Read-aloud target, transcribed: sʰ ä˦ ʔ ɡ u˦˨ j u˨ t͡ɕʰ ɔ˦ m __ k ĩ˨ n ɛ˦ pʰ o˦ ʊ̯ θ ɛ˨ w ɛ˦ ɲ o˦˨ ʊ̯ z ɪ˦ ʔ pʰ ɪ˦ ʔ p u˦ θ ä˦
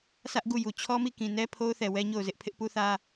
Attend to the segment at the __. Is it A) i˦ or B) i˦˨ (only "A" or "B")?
B